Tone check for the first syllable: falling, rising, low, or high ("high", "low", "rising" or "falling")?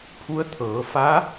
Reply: rising